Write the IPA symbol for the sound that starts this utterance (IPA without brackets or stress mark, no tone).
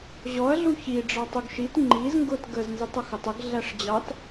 ʑ